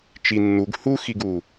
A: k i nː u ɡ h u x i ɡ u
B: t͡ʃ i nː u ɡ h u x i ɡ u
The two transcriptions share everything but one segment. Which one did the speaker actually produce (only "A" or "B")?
B